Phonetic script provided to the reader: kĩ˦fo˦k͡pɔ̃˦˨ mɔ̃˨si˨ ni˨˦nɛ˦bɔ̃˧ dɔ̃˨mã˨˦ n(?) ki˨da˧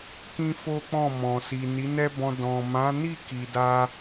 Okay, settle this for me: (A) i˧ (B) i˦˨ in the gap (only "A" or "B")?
B